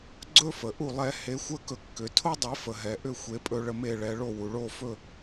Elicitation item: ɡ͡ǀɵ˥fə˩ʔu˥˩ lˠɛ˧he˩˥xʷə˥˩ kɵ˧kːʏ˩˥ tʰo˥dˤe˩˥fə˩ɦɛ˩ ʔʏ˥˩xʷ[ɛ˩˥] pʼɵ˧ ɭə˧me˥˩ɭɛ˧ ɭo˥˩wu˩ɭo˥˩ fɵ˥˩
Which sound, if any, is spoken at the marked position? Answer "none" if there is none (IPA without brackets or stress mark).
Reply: e˩˥